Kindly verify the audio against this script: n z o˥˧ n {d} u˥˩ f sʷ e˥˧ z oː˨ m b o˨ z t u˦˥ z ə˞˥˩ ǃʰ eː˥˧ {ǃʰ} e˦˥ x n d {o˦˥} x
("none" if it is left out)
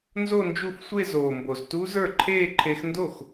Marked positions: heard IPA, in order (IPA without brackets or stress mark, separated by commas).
d͡ʒ, ǃʰ, o˥˩